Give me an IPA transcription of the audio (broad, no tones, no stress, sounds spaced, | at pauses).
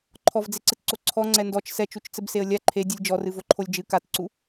ǃʰ ɔ v d͡z e ǀ ɨ t ǀ o ǀʰ ɔ ŋ͡ǀ ɛ n d ɔ t͡ʃ s ɛ t͡ʃ u t͡ʃ t͡s ɘ b s e ə̯ lʲ a ǃʰ e dʲ ɨ lʲ d͡ʒ ɔ r ɨ v o ǃʰ o lʲ d͡ʒ ɨ k a t ǀ u